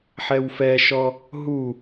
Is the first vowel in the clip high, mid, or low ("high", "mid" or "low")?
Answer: mid